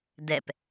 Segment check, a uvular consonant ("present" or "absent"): absent